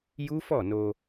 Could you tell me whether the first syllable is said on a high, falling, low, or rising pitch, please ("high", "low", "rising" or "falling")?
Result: high